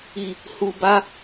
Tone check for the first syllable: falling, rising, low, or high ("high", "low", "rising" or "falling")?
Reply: low